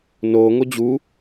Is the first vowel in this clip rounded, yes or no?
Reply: yes